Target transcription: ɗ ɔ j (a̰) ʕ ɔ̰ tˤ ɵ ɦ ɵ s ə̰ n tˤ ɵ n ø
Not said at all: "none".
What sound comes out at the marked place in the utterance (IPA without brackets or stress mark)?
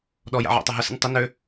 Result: a̰